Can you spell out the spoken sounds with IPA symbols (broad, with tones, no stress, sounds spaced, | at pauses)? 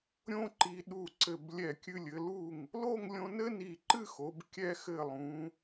ɾʲ õ˥ ǃ i˧ ɗ u˧˩ ǀ ɘ˧˩ b lʲ ɛ˧˩ kʲ ɨ˧ lʲ ɘ˩˧ l u˧˩ ŋ | l o˥˧ ŋ lʲ õ˧ n ɘ˥ n i˧˩ ǃ ɨ˥˧ x o˩˧ b kʲ ɛ˧ x ɘ˧˩ lˠ ũ˩˧